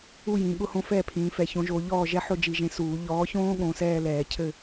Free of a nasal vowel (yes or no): no